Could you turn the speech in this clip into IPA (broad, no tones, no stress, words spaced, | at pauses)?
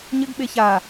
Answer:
ɲɘɡɓe ça